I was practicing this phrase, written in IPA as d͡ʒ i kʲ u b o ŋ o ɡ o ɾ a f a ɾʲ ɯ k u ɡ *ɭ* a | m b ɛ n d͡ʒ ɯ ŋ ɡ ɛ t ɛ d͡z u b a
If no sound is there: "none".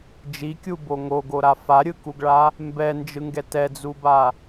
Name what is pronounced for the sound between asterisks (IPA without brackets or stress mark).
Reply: ɭ